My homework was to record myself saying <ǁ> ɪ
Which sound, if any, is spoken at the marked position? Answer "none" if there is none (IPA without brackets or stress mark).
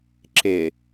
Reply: ǁ